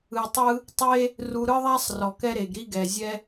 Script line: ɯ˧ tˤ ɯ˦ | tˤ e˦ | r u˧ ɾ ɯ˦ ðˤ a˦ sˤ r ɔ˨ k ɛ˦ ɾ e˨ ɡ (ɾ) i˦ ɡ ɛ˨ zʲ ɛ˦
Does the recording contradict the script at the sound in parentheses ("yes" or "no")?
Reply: no